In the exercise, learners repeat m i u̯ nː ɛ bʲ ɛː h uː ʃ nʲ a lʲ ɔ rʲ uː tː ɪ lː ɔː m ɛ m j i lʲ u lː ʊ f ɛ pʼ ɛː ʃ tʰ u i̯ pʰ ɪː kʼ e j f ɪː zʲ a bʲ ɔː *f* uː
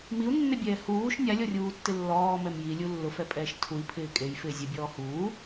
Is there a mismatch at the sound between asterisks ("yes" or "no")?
yes